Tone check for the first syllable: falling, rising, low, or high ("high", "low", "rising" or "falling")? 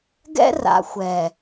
high